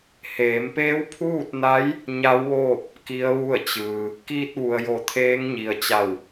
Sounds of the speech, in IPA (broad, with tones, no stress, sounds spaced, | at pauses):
h eː˩˧ m p eː˧˥ w pʰ uː˥˨ t̚ n a˧˥ j | ɲ a˧˥ w ʋ oː˥˨ p̚ | k i˧˥ ə̯ ʋ u˥˨ ə̯ t͡ɕ ɯː˩ | k iː˧ t̚ ʋ u˩ ə̯ j o˧˩ t̪ʰ eː˧˥ ŋ ɲ i˩ ə̯ t͡ɕ a˧˩ w